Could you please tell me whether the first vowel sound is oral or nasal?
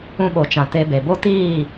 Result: nasal